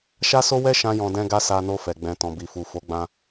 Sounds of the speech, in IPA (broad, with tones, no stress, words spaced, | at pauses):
ʃa˦so˦wɛ˦ ʃã˦jɔ̃˧ dɛ̃˦ɡa˦ sa˧no˧fɛ˨ ɡ͡bɛ̃˨ tɔ̃˨bi˨fu˨ fo˨˦ɡ͡bã˧